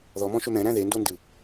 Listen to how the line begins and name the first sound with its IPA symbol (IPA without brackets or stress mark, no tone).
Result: ð